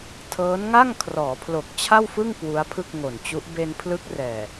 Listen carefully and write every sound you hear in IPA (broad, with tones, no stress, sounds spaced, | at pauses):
tʰ ɤː˦˥ n ŋ a˥˩ ŋ kʰ r ɔː˩˦ pʰ l o˨˩ k̚ t͡ɕʰ a˥˩ w f ɯ˥˩ ŋ k w u˦˥ a̯ pʰ ɯ˥˩ k̚ ŋ o˨˩ n t͡ɕ u˦˥ ʔ b e˧ n pʰ l ɯ˦˥ k̚ r ɛː˨˩